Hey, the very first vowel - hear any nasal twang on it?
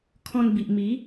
yes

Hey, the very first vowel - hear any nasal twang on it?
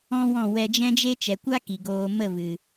yes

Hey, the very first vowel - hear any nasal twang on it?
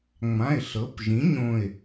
yes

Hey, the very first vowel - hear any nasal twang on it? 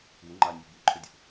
no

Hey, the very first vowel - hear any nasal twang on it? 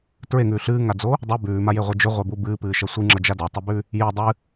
no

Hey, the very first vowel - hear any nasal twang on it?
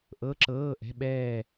no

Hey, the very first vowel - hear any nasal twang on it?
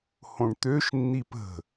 yes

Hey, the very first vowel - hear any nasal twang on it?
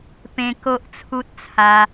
yes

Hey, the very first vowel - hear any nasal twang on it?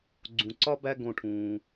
yes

